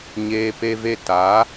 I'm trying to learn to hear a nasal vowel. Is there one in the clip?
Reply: no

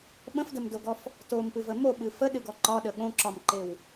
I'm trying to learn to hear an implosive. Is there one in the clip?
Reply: yes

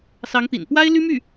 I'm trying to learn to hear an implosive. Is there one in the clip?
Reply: no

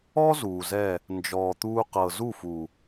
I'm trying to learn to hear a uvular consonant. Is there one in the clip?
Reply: yes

